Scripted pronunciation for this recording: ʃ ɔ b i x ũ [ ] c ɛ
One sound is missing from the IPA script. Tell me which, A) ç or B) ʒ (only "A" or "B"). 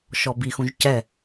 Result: B